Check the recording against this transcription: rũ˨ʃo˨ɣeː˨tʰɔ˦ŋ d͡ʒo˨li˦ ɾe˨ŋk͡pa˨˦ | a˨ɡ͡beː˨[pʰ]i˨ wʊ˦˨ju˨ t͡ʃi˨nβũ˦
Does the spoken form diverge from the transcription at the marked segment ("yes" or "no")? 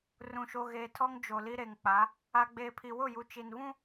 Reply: no